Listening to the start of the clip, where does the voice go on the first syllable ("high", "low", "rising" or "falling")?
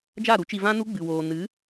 falling